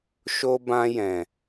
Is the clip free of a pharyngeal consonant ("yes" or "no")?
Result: yes